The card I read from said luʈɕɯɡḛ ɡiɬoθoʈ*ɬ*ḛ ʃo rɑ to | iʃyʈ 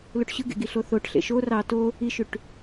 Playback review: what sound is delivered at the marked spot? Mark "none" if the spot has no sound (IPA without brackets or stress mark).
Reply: ɬ